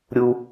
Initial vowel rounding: rounded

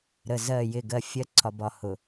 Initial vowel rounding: unrounded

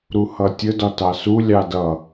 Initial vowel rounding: rounded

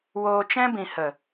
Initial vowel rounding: rounded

